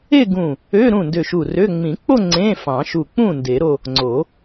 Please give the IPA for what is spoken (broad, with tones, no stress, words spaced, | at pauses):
e˥˧ɡũ˧˩ | ø˧˥˧ ɾũ˥˩ndø˧˩ʃu˧˩rø˧˥˧ ŋ͡mĩ˨˩˦k͡po˥˧ ŋ͡ǀẽ˧˥˧fɑ̃˨˩˦ʃu˧˩ k͡pũ˥˩ nde˨˩˦ɾo˥˧ | ŋ͡ǀo˨˩˦